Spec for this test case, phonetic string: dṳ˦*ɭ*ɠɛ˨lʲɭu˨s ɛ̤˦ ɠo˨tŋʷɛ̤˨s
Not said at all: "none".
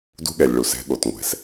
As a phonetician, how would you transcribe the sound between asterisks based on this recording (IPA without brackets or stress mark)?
none